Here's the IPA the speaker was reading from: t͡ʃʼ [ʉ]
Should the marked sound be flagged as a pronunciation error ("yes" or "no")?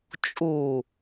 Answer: yes